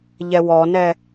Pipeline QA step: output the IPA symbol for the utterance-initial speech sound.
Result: ʎ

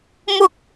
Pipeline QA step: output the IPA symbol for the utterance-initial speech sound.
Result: m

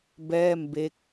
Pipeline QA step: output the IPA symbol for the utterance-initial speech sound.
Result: b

